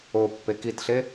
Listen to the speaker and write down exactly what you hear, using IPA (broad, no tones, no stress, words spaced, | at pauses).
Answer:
o pːekitɬe